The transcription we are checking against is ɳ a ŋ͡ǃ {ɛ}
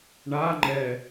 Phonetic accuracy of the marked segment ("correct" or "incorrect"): correct